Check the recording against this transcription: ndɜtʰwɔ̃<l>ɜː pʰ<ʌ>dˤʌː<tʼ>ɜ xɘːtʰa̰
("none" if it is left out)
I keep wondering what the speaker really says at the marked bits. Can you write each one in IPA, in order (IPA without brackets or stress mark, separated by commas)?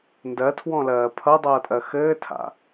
l, ʌ, tʼ